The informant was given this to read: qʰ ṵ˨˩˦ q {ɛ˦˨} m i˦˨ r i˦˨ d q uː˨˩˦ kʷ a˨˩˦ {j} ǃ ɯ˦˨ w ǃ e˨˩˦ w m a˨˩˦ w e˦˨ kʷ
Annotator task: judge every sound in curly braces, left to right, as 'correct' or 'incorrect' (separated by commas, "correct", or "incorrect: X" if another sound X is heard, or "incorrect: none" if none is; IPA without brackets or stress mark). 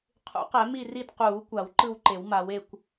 incorrect: ɛ˨˩˦, incorrect: w